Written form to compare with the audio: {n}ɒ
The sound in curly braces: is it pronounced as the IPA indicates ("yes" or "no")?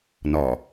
yes